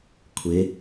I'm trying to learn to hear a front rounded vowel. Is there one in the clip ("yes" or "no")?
no